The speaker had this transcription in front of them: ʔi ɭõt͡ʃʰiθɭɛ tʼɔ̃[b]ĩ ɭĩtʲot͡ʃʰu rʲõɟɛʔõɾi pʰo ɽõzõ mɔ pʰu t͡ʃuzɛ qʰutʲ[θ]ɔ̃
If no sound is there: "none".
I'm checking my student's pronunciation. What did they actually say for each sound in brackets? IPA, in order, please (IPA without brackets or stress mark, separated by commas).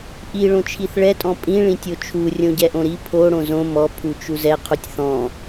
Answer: pʼ, θ